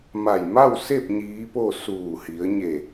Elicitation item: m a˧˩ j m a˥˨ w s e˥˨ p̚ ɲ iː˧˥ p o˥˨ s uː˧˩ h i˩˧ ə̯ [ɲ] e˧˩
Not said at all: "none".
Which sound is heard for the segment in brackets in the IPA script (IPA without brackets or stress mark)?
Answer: ɲ